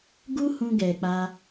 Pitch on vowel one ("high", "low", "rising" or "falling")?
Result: high